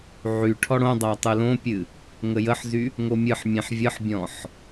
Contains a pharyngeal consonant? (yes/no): yes